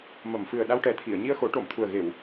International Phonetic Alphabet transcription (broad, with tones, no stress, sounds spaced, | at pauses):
m ə˨˩˨ m f ɨ˨˩ ə̯ ɗ a˧ w ʈ ɛ˨˩ t̪ʰ i˨˩˨ ə̯ ɲ i˧ ə̯ x o˨˩˦ ʈ o˨˩˨ m t̪ʰ u˨˩ ə̯ ɣ e˨˩˨ w